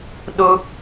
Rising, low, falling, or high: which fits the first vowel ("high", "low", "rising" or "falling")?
high